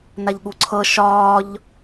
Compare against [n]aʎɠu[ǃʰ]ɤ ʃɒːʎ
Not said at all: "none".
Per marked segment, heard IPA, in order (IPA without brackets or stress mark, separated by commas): n, ǀʰ